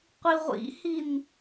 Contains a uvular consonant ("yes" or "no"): yes